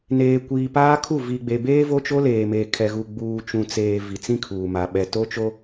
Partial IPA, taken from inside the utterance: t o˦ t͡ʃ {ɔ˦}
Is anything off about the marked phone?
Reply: yes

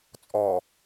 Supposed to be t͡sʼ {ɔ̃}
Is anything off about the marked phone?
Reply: yes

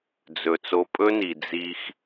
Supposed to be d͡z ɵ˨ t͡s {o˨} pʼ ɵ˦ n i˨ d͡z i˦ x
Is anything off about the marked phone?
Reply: no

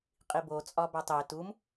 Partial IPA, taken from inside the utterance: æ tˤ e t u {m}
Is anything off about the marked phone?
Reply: no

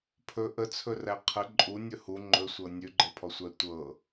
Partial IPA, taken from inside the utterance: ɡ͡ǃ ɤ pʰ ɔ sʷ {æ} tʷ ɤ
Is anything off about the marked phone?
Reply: no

